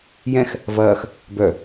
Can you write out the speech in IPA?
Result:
jɛ̃x | vɐːx | bœ

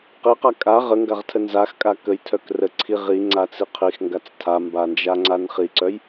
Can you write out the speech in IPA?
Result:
qiqa kʼa ʁəŋɡaʁtʰə nzaxkʼa kəjtʰœk rə ǀʰi ʁiŋ͡ǀat͡si qʰixŋɡat͡s tʰamband͡ʒaŋ͡ǀan χiǀœj

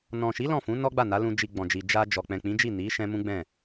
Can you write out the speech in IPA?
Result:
nɔ̃˨ʃi˨˦ lɔ̃˦˨fũ˨˦nɔ˦ ɡ͡ba˦˨na˨˦lũ˧ d͡ʒi˨ ɡ͡bɔ̃˨d͡ʒi˨ d͡ʒa˧ d͡ʒɔ˨ k͡pɛ̃˨k͡pĩ˨˦d͡ʒi˦˨ ni˨˦ ʃɛ̃˦ mũ˦ɡ͡bɛ̃˦˨

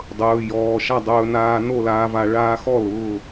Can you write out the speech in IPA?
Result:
dˤɵː˩˧˩jɔː˩˧˩ʃa˥˩dˤɵː˧ naː˧ no˥˩laː˧va˧˩˧ ɭaː˧xɔ˥˩lʊː˩˧˩

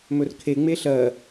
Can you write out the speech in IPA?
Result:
mɵrkʰe ŋ͡meɬɜ

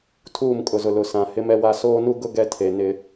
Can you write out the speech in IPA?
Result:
tʰuː˦˨mkʼʊ˨zʊ˨ lʊ˨sã˨ hɪ˦mɛ˦wa˦ soː˦nu˦ɡʊ˦ ɡɛ˦tʰe˨nɪ˦

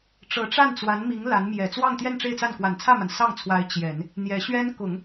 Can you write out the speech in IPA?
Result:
ʈ͡ʂɤ˧˥ʈ͡ʂa˥˩n t͡swa˧˥nmi˧˥ŋ la˧˥n mjɛ˨˩t͡swɑ˥˧ŋt̪jɛ˥˧n ʈ͡ʂe˥˧ɪ̯t͡sa˥˩n kwa˨˩nt͡sʰä˥˩ma˩n sɑ˥˩ŋt͡sʰwa˧˥ɪ̯ t͡ɕjɛ˨˩˦n | n̪jɛ˧˥ɕɥɛ˥nkʊ˨˩˦ŋ

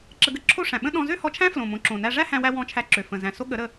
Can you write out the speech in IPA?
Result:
ǁə˧ɡə˧ǁʰo˦ʂæ̃˨ ɓə̃˦ɗɔ̃˧ zø˦hɔ˧t͡ʃʰæ̃˦ flõ˨mõ˨ǁõ˨næ˧ ʐæ˦hæ̃˧wæ˧ wɔ̃˧t͡ʃʰæ˧ǁø˨ fə̃˨zæ̃˨ so˦ ɠə˨˦ɾə˧

